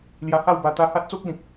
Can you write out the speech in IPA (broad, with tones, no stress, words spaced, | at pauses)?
lja˧ha˥˧wba˧ t̪a˧ha˦t̚t͡so˦k̚lĩ˨k̚